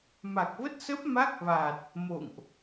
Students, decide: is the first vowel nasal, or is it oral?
oral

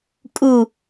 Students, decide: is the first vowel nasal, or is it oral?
oral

